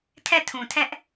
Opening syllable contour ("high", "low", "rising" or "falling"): falling